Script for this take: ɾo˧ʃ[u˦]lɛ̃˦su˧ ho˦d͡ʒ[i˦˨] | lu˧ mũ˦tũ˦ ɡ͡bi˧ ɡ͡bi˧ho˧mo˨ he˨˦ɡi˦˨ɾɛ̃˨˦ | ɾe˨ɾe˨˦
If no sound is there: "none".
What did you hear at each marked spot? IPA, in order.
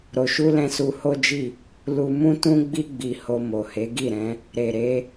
u˦, i˦˨

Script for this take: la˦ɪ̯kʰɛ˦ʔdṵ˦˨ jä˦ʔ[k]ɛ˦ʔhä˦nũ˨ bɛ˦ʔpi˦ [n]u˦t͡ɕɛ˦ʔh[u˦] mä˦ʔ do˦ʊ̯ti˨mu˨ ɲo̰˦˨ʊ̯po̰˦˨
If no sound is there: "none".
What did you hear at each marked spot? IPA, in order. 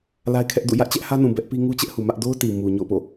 t͡ɕ, ŋ, u˨

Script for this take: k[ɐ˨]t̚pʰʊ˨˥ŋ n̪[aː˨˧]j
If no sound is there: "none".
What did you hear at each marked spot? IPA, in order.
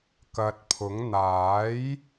ɐ˨, aː˨˥

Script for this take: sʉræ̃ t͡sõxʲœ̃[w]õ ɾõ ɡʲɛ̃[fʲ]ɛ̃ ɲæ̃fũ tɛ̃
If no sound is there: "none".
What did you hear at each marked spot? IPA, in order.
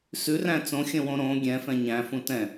w, f

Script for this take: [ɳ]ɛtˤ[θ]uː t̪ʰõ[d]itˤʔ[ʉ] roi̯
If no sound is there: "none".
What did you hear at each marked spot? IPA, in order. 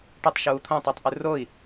ʈ, ʃ, tˤ, ʉ

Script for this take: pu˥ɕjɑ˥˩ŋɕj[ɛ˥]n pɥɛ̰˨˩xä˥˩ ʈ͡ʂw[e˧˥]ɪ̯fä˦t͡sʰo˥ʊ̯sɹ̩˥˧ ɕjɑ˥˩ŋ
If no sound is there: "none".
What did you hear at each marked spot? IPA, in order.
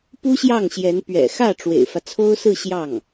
ɛ˧˥, ḛ˨˩

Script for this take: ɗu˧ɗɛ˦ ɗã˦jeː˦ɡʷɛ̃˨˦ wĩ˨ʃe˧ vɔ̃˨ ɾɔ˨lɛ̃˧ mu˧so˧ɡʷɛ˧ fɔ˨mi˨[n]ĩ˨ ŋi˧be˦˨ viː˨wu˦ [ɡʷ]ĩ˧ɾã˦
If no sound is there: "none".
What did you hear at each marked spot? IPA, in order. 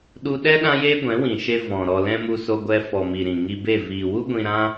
ɾ, ɡʷ

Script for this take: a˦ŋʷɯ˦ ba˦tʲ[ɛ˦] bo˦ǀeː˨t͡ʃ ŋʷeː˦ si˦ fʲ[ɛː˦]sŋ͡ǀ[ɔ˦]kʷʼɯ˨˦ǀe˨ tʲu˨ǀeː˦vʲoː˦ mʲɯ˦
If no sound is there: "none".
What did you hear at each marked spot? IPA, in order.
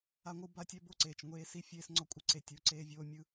ɛ˦, eː˦, ɔ˦

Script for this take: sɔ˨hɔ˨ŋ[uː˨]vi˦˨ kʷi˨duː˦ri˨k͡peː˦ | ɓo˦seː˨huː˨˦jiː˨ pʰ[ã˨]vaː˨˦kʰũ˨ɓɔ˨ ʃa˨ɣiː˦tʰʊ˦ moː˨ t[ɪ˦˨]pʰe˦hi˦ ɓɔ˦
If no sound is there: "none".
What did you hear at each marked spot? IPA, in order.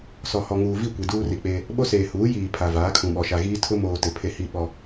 uː˨, a˨, ɪ˨

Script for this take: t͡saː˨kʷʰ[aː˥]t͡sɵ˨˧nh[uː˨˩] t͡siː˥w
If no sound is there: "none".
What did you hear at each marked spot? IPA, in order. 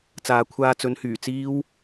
aː˧, yː˨˩

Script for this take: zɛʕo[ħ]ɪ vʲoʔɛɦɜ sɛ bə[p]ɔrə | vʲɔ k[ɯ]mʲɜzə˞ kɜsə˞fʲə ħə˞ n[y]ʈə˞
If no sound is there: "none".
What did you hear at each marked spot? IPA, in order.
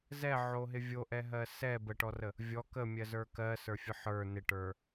ɦ, ʈ, ə, ɪ

